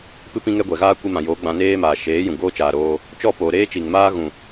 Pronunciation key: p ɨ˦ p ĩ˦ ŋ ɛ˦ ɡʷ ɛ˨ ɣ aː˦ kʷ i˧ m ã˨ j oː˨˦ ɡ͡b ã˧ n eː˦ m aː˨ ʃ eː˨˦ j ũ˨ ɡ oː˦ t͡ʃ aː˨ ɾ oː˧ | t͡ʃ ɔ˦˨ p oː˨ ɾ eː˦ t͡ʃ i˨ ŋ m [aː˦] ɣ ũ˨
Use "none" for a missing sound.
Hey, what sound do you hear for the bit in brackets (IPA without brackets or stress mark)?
aː˦